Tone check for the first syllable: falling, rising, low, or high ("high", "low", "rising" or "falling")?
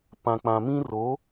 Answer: low